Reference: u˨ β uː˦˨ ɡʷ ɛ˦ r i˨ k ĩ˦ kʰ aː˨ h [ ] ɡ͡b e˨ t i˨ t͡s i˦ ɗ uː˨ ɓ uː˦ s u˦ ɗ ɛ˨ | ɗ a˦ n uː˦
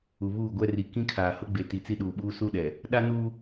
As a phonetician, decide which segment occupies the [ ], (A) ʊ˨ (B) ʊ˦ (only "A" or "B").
B